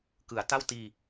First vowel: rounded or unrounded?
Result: unrounded